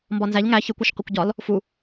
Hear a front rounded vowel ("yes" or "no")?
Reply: no